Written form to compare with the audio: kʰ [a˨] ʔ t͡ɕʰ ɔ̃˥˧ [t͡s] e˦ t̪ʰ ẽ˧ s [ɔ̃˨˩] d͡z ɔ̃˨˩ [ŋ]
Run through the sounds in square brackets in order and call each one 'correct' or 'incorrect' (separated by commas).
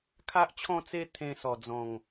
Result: incorrect, correct, incorrect, correct